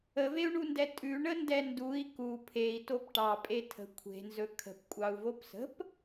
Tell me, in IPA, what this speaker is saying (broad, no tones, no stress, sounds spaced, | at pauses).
ə v e u̯ ɳ u n d ɛ tʼ ʉ ɳ ə n d ɛ n d u i̯ k u pʰ e i̯ t o p ʈ ɑ pʼ e tʰ ə̤ kʷʰ e̤ n z ɵ kʰ ə̤ p kʷʼ ɑ u̯ v o p s ə̤ p